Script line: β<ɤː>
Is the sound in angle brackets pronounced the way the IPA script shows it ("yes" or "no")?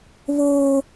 no